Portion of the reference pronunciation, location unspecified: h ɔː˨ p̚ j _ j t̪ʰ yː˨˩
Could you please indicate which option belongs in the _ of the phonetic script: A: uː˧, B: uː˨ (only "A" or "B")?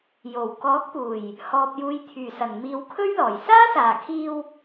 B